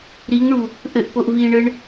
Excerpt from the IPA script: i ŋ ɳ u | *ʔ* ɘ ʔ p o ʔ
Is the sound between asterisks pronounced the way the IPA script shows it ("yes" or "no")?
yes